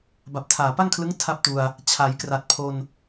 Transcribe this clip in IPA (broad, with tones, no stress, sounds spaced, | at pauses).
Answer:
b a˨˩ p̚ tʰ aː˨˩ p a˥˩ ŋ kʰ l ɯ˦˥ ŋ tʰ a˦˥ p̚ t u˧ a̯ | t͡ɕʰ a˩˦ j k r a˨˩ t̚ pʰ o˧ n